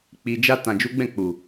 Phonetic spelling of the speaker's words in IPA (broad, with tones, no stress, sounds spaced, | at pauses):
k͡p i˧ d͡ʒ a˦ t ã˧ d͡ʒ u˦ ɡ͡b ɛ̃˦˨ k͡p u˨